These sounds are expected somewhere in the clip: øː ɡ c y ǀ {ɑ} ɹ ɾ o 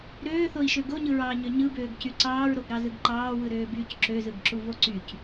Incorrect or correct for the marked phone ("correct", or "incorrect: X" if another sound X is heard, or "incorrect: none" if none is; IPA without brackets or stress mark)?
incorrect: ɑː